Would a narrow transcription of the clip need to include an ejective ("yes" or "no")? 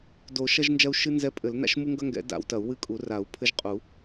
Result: yes